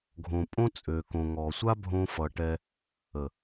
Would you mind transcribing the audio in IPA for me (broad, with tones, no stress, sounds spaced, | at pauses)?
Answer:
ɡʱ õ˨ pʼ õ˦ t͡sʼ ø˨ k õ˨ ŋ ɔ˨ sʷ a˦ bʱ õ˧ f ʌ˨ ʈ ɛ˧ | ə˨